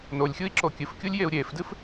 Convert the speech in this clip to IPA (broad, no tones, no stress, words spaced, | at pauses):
nolʲxʲui̯ǁo kʲɨfkʲulʲjeu̯ ɾʲeːfdɨf